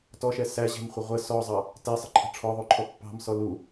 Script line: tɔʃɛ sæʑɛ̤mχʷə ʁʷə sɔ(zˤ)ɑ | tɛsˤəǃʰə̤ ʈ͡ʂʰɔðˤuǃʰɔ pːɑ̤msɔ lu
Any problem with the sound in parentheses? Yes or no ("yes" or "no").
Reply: no